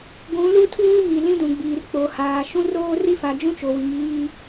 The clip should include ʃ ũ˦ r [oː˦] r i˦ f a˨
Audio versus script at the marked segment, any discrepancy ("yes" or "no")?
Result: no